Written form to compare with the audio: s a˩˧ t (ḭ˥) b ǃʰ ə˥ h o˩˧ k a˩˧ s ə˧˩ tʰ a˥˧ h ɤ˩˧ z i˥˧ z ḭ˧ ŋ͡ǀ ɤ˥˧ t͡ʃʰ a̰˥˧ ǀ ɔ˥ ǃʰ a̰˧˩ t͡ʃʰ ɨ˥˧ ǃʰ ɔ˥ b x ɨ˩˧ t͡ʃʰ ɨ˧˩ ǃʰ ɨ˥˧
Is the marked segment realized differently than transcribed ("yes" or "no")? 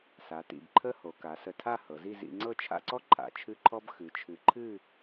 yes